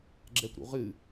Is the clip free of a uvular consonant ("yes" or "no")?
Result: no